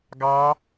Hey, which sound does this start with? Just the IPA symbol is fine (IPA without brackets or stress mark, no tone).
ɡ